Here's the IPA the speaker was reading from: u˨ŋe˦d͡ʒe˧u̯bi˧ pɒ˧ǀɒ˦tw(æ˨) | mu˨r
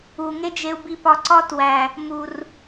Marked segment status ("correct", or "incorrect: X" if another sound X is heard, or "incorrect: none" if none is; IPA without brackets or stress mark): correct